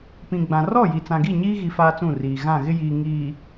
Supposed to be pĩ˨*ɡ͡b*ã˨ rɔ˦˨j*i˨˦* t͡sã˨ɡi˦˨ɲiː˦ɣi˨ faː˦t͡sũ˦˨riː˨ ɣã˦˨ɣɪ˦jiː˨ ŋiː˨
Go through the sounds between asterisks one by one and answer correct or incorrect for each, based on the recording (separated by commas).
correct, incorrect